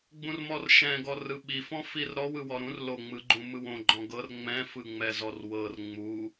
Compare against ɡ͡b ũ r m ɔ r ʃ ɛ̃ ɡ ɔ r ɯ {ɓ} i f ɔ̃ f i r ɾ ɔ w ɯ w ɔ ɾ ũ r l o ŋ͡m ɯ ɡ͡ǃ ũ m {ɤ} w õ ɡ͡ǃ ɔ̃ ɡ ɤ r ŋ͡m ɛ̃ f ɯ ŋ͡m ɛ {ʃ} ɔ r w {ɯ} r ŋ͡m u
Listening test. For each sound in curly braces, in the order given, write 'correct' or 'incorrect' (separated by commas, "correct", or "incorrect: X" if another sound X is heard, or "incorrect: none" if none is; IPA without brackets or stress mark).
correct, incorrect: ɯ, incorrect: z, incorrect: ɤ